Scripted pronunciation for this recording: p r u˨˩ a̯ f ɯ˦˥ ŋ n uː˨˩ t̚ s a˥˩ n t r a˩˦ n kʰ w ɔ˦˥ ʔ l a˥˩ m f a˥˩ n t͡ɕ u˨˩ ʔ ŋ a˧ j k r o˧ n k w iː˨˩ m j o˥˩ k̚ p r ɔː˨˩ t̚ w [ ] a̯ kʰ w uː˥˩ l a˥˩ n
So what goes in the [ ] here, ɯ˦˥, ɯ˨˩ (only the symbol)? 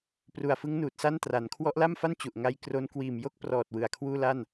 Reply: ɯ˨˩